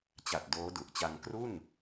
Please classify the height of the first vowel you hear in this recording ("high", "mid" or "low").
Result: low